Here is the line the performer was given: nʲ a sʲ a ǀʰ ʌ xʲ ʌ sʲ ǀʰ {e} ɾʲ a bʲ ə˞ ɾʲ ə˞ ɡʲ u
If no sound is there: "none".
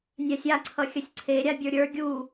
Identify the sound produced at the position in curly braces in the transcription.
e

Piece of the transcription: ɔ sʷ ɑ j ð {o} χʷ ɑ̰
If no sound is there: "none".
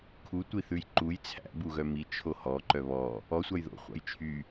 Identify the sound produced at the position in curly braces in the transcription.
o̰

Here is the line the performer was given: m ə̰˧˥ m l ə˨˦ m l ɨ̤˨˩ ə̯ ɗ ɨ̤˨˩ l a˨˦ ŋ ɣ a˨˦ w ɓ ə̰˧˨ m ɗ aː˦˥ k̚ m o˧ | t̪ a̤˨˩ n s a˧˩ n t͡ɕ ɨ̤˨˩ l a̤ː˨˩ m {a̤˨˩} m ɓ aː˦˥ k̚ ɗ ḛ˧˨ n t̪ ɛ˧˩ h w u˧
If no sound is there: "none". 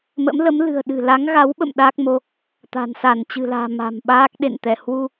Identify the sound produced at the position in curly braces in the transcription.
a̤˨˩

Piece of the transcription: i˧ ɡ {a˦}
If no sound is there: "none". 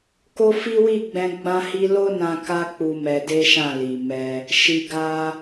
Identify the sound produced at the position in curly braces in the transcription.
a˦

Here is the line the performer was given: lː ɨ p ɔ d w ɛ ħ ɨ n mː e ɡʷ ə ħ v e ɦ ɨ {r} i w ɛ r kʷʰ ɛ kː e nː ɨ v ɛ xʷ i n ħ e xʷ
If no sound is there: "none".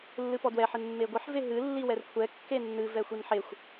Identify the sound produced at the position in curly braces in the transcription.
lː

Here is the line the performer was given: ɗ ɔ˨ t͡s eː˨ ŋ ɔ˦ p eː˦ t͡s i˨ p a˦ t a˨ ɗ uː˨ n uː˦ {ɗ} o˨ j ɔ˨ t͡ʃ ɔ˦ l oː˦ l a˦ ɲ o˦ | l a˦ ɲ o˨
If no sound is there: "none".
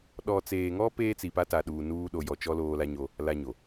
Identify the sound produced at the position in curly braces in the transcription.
ɗ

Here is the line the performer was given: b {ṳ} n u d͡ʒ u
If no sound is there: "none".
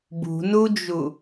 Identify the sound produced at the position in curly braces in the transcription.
ṳ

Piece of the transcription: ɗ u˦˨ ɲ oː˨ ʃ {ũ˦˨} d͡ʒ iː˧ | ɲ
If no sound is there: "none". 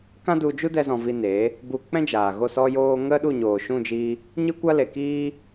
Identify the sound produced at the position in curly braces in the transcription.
ũ˦˨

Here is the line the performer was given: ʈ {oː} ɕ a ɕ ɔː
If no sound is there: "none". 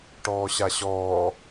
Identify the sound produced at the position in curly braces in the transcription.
ɔː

